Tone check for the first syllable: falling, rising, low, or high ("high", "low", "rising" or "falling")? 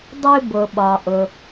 high